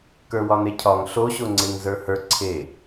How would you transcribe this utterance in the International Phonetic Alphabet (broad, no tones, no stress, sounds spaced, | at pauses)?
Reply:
k ə˞ w ɒ n e cʰ ɒ ŋ ɬ o ɕ o ŋ͡ǀ e ŋ z ə˞ h ə˞ ǀʰ e